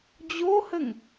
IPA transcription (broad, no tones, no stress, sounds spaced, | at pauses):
d͡ʑ o h ə ŋ